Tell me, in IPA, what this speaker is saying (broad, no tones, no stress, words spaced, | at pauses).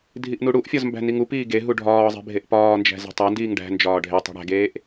dʱiʔnuɽuʔfʲɒz mbæ̤niŋupiː ɡeɦu ɖʱɒːzˤe̤ bʱeʔpɒːnd͡ʒæ̤ ze̤tˤændiːŋ ɖæ̤nd͡ʒɒː ɖʱetˤi̤ ɽæ̤ɡeːʔ